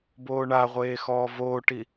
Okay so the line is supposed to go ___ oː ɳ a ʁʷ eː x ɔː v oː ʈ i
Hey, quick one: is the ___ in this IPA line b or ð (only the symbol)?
b